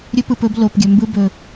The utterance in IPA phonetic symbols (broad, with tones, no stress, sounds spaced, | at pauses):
ɾʲ ɵ˦ p ɯ˨ p ɵ˨˦ b l o˨ p ɡʲ ɵ˨ m b ɯ˧ b ɵ˨